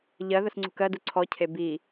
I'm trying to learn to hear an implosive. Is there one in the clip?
no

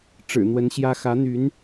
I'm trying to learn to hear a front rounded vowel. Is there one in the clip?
yes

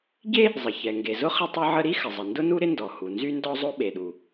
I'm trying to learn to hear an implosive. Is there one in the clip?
yes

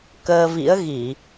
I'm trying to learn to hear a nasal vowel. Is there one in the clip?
no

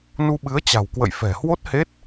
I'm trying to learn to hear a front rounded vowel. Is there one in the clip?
no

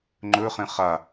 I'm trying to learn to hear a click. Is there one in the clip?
yes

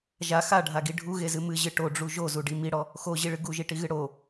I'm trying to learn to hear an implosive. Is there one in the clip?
no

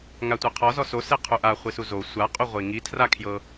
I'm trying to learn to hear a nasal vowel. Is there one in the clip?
no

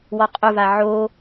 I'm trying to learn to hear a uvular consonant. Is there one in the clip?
yes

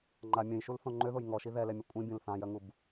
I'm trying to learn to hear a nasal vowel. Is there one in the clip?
yes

